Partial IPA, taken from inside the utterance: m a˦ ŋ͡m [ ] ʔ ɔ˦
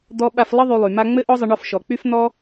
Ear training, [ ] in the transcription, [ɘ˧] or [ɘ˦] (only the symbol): ɘ˦